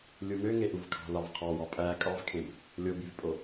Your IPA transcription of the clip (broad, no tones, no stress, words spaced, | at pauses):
lʲumøŋeʔuv kʰɑ̤lɑvqʰɑwɑ pʼæ kʼɑvkʰẽb | lʲobyvpʼo